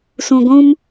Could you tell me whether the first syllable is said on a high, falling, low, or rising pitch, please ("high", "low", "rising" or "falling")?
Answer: low